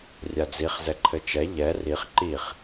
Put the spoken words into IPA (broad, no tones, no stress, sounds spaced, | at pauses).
rʲ a d͡z i χ z ɛ ǃʰ ɘ t͡ʃ ɛ ʎ ɛ r i χ ǃ i χ